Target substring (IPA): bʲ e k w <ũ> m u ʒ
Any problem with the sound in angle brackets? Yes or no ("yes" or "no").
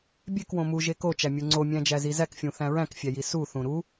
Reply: yes